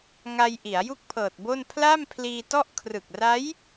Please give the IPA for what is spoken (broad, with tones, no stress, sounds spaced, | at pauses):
ŋ a˧ j ʔ i˩˦ a̯ j u˥˩ k̚ pʰ ɤː˨˩ t̚ b o˥˩ n pʰ l a˥˩ m pʰ l iː˧ t ɔ˥˩ ʔ kʰ r ɯ˨˩ k̚ r a˦˥ j